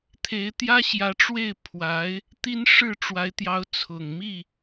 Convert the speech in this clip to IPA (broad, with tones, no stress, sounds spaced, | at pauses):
t̪ʰ e˧˥ ɪ̯ t̪ j ä˥ ɕ j ä˧˥ ʈ͡ʂ w e˥˩ ɪ̯ pʰ w a˧˥ ɪ̯ | t̪ i˥ n ʂ ɻ̩˥˩ ʈ͡ʂ w a˧˥ ɪ̯ t̪ j ɑ˧˥ ʊ̯ t͡sʰ ʊ˨˩ ŋ m i˥˩